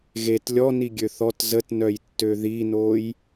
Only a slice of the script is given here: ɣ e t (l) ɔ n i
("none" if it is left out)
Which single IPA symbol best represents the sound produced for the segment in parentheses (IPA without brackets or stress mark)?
lʲ